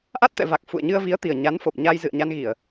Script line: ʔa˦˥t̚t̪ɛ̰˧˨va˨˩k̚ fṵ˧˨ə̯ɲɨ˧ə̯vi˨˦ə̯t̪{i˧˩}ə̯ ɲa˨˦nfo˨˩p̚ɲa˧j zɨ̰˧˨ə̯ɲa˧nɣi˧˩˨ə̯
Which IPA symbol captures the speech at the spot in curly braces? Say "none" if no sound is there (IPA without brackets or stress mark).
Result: i˨˩